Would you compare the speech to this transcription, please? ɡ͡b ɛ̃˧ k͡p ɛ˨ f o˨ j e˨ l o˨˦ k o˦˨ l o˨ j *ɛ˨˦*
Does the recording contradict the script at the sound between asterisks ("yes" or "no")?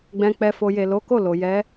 no